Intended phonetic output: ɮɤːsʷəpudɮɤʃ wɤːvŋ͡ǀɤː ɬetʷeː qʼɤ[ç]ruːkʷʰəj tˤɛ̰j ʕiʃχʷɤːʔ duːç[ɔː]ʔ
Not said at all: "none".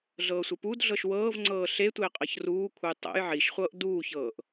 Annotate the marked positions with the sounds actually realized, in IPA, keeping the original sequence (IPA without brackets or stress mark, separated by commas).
ç, ɤː